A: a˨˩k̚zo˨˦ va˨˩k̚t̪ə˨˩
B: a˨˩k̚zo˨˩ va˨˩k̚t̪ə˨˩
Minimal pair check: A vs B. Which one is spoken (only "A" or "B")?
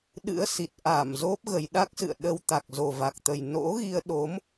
B